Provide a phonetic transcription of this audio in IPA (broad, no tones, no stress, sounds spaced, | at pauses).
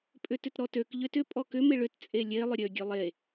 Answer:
pʼ ʏ t ʏ t ɾ ɔ t ø k ʎ ʏ t ʏ pʼ ɔ k ʏ m ɪ ɭ ʏ t t͡sʼ e lʲ e lˠ ʏ ɾʲ ø ɡʲ ø lˠ e